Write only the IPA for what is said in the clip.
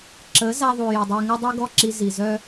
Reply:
ǁə˨˦ za˧ðˤu˨ ji˨dˤe˧ŋə˦dˤi˦ ɡɔ˦˨ǁi˧zi˨ zœ˦

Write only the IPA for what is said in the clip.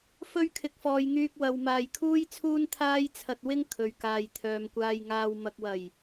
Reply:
fɵ˥ɥkʰɪ˨k̚fɔː˨j ŋyː˧k̚wɐ˨wmaː˨j kʰuː˥jt͡sʰuː˥nt̪ʰaː˥j t͡sʰɐ˧t̚wɪ˥ŋ kʰɵ˨ɥkaː˨jt̪ʰœː˨mkʷaː˧j ŋaː˨wmɐ˨k̚wɐ˨˩j

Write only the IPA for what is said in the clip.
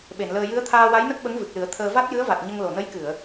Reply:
ɓe˨˩˨nləː˧ jɨ˧˥ə̯t̪ʰaː˧wa˧˥jnə˦˥k̚ ɓə˧˥ŋvɨ˨˩k̚lɨ˨˩˦ə̯ t̪ʰəː˧ va˦˥t̚jɨ˧˥ə̯va˨˩t̚ ɲə˧ŋlo˨˩nə˧˥jkɨ˨˩˨ə̯

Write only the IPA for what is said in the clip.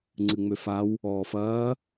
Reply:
ŋ͡ǀɨŋ͡møfaw | ɔːfɐː

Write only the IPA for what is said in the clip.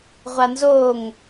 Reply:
ʁʷanzoŋ

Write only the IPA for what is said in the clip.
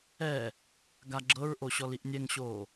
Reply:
ɛ | ɡaɡ͡ǁɤɹʔoɕɔl iʔnʲɛŋɕoː

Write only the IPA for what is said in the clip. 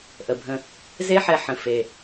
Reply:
ʔə˨˩bʱə̃˧ | ze˥ħɛ˧ħə̃˨˩ fe˨˩

